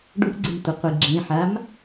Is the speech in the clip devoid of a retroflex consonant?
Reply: no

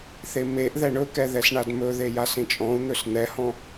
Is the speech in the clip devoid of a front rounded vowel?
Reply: yes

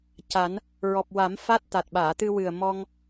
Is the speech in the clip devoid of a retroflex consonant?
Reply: yes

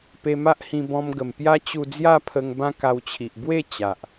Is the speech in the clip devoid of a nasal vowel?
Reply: no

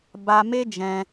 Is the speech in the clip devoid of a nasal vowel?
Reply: no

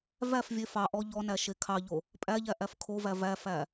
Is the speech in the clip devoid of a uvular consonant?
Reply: yes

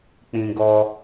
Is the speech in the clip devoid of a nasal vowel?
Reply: no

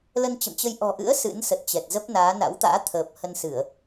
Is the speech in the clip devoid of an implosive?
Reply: yes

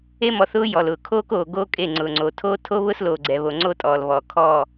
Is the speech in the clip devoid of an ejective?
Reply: no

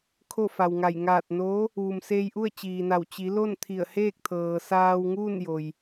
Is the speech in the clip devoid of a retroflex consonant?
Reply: yes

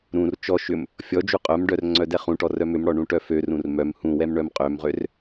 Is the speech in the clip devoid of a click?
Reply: no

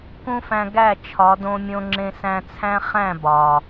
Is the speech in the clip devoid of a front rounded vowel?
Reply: yes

